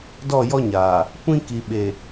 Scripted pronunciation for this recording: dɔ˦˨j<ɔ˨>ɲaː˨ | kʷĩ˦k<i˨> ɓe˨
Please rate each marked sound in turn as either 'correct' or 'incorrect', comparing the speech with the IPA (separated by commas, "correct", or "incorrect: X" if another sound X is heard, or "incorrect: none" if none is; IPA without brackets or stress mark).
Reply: incorrect: ɔ˦, correct